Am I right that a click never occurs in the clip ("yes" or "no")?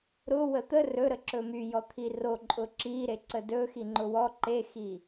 no